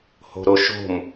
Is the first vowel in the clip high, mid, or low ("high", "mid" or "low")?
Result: mid